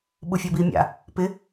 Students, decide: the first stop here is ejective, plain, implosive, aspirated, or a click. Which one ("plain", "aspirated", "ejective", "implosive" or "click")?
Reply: implosive